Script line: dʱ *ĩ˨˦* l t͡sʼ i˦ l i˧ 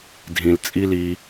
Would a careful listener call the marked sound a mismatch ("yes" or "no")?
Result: yes